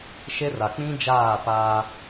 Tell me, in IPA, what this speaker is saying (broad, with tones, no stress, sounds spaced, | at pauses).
ʃ e˦ r a˨ k͡p ĩ˦ d͡ʒ aː˦˨ p aː˦